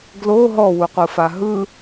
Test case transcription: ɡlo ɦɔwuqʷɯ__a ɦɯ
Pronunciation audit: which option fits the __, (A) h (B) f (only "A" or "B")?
B